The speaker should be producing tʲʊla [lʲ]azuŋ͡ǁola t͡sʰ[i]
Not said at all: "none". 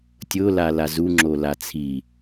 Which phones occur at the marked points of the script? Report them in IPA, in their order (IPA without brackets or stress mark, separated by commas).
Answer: l, i